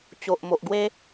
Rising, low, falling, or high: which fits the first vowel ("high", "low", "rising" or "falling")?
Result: low